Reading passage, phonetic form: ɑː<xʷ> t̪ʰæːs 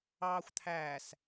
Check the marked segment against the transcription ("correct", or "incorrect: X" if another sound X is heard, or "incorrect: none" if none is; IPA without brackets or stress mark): correct